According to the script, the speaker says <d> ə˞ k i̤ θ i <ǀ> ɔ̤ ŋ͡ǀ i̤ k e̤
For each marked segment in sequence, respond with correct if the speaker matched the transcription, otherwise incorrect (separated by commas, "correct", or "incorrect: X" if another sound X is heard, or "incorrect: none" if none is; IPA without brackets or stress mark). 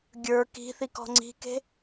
incorrect: ɡʲ, incorrect: k